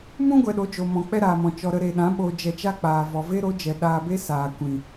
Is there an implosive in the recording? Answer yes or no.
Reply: yes